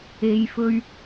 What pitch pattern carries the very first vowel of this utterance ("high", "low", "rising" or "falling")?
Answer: low